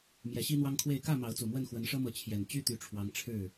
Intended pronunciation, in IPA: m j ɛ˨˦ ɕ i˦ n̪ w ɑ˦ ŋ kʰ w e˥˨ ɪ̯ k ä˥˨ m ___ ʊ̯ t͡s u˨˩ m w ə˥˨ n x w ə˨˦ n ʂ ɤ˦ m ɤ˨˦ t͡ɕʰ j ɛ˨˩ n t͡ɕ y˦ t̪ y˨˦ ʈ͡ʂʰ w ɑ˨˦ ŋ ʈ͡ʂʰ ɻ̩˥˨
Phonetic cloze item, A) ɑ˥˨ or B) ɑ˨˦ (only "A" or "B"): B